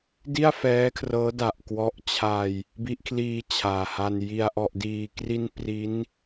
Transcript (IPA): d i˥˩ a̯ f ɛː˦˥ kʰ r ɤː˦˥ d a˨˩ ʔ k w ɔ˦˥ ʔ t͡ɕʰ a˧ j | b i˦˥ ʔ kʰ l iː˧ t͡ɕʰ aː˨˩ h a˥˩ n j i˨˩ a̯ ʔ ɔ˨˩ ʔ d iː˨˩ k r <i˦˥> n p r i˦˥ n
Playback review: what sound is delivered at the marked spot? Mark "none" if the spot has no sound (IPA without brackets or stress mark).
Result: i˧